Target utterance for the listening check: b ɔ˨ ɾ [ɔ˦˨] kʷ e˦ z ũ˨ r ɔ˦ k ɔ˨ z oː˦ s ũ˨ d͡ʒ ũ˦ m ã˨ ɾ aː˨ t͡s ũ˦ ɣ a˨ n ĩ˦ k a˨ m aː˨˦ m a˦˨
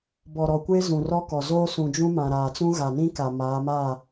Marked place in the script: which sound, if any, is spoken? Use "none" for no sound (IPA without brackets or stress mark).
ɔ˨